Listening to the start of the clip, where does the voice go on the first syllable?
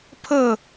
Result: falling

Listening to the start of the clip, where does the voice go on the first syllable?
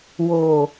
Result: low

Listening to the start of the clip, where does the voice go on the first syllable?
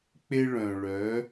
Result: high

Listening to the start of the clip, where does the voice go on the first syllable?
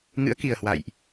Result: rising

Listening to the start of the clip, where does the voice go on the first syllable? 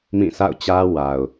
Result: falling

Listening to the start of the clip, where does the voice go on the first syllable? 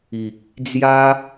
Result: low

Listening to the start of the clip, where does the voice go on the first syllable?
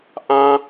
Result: high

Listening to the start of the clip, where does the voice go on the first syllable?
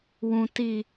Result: low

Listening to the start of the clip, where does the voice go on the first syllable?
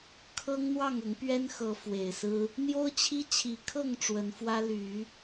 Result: high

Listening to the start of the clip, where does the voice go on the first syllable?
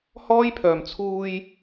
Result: high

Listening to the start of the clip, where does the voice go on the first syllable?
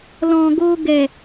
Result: low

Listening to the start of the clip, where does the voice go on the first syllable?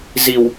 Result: low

